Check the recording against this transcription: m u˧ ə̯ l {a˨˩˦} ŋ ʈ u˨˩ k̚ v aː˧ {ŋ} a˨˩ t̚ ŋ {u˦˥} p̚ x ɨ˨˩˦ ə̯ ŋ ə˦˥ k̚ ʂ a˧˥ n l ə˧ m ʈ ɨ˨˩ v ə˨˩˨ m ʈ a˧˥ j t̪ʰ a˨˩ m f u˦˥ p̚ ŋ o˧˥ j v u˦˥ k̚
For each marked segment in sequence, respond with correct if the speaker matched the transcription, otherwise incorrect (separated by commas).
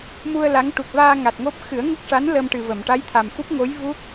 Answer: incorrect, correct, incorrect